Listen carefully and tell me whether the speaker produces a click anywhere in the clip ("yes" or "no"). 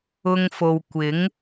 no